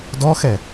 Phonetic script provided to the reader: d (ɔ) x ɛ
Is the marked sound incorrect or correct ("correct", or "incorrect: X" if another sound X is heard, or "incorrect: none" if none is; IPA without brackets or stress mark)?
correct